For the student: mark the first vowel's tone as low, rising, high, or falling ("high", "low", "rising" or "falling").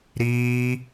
high